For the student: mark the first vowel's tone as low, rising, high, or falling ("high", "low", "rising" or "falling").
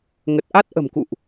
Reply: low